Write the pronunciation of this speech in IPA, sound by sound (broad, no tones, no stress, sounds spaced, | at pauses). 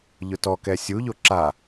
ʎ ʊ t ɔ k ɛ sʲ u ʎ o ǁ a